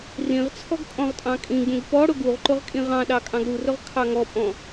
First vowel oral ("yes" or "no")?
no